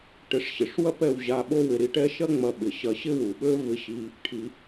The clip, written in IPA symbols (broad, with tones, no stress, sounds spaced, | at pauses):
ʈ ɪ˧ ʂ ɕ ɪ˨ ʂ w ɐ˦ p ɛ˧ w ʑ a˧ ɓ o˦ w ɪ˧ ɾ i˧ ʈ ɛ˦ ʃ ɐ˦ ŋ͡m ɐ˧ ɓ ɪ˨ ɕ ɐ˧ ɕ ɪ˦ w u˨ ɓ ø˦ v ɪ˧ ɕ i˧ | ʈʰ i˧